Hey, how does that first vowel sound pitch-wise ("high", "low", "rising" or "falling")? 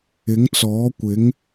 rising